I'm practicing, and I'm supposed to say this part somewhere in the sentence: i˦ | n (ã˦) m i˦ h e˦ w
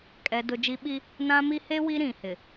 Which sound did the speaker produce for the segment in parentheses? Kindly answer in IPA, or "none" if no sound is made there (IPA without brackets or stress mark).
ã˦